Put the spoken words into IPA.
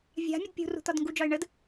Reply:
vʲ a̤ mʲ ə d pʲ ṳ r ṳ t̪ ɒ d ŋ ɡ u d͡ʒ ɒ ɪ̯ ɳ ə d

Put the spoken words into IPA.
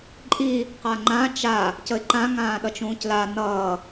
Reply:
ǃʼ i | q a ŋ͡ǃ ã t͡ʃ a | c ə ɪ̯ ǃ ã ŋ ãː ɗ ʌ t͡ʃ ũː c l a n ʌː

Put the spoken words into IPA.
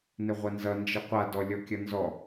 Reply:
n ɪ ʁʷ ɐ n z ʌ n d͡ʒ ɨ qʷ a d ɔ lʲ ɔ kʲ ʌ n z ɔ

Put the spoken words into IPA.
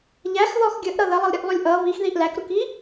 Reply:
ʎ æ x ð ɔ x ɡʲ ə ʔ ɾ ʌ ð ə lˠ ə lˠ ɾʲ ə ʔ lˠ u lʲ ʔ ʌ β i x ð i ʔ l æ k ɾ u k i

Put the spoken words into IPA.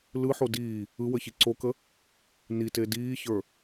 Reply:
l ɯ ħ o d iː | ɯ w ə ç i ǀ o k ə | n i t e d iː ç ə˞

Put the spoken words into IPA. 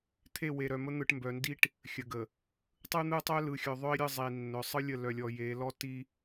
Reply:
t̪ʰ e˦˨ w e˨ ɾ œ˨ m ə˦ n̪ ɯ˨ ʈ m b œ˨ n d i˦ ʈ | xʲ ə˨ ɡ ə˨ | tˤ ɯ˦ n̪ ɯ˦ tˤ œ˦ l ɯ˨ xʲ œ˨ ðˤ œ˦ i̯ ɾʲ ɯ˦˨ zˤ i˨ nː œ˨ sˤ ɯ˦ lʲ ə˦˨ l œ˨ lʲ ɔ˨ j e˨˦ l ɔ˦ t i˦

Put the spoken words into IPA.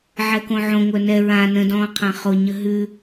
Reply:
ʕ ɛ k õ ʕ õ ŋʷ œ n ɛ ɹ ã n ə̃ d ɔ̃ː qʰ ã χ o ɲ ə ɦ ʉ

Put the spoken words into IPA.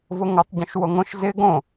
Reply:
v ʊ ŋ o tˤ ɟ õ ʃ w o ŋ õ ʃ z ɪ ɡ õ

